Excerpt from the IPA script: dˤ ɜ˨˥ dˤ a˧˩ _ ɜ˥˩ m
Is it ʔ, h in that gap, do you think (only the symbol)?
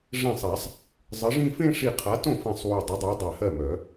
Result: h